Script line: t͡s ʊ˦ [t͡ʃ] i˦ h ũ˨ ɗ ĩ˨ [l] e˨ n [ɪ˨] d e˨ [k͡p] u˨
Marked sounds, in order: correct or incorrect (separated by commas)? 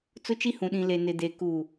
correct, correct, correct, incorrect